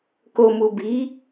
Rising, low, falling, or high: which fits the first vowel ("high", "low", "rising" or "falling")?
low